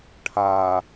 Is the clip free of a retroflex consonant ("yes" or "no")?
no